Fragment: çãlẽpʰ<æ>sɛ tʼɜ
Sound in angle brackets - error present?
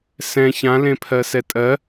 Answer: yes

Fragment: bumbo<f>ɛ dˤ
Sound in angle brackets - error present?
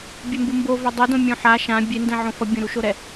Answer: yes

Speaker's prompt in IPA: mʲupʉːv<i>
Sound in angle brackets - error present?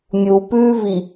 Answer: no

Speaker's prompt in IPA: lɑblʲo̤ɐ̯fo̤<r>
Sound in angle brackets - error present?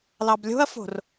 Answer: no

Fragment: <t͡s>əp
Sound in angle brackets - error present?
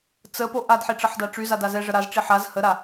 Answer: no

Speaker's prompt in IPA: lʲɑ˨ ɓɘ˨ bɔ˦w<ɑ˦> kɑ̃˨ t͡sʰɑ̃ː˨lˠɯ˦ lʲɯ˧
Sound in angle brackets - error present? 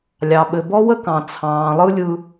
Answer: yes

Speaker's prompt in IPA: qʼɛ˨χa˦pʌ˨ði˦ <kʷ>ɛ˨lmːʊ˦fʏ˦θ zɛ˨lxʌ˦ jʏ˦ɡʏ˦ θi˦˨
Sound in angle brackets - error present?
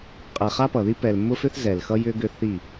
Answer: yes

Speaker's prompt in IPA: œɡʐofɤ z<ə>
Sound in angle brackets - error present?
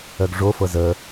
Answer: no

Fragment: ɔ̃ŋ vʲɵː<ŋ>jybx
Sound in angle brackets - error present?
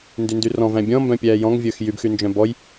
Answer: yes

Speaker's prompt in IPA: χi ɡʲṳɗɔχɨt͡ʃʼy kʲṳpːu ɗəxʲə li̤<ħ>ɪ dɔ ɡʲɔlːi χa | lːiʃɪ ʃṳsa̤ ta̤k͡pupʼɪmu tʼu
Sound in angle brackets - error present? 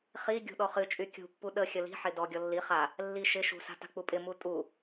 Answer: no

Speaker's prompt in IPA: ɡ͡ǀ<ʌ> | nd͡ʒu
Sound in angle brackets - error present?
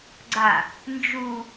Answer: yes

